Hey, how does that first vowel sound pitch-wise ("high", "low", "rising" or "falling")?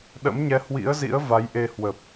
rising